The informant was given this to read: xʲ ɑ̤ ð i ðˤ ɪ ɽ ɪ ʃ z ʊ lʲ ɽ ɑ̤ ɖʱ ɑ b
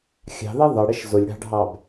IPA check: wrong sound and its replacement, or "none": none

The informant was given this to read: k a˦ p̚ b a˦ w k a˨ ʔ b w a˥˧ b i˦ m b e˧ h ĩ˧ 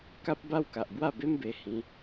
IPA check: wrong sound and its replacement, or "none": i˦ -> e˦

